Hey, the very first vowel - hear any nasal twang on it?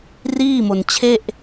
no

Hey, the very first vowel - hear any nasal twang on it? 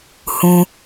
yes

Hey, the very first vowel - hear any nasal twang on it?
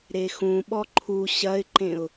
no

